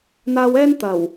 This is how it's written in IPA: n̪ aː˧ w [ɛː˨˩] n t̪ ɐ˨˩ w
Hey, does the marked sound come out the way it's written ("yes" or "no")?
no